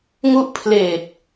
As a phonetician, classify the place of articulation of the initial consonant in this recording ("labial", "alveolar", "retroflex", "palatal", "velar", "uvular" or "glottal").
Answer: velar